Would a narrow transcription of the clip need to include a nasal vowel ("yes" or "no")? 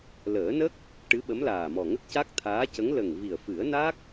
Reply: no